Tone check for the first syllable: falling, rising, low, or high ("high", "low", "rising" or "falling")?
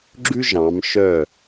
high